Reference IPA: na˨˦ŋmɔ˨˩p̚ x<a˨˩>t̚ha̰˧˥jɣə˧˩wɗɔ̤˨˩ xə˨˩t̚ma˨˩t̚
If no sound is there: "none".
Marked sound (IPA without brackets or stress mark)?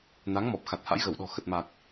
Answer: a˨˩